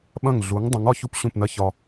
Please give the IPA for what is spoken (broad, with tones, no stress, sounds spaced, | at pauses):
ɓ ɐ̃˥˩ ŋ ɮ u˩˥ ŋ dˤ ũ˩˥ ŋ ɒ˥ ç u˥ p ɕ ũ˥˩ p n ɐ˥ ç ɒ˧